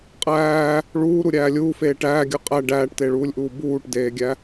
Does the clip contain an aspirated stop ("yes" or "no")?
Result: no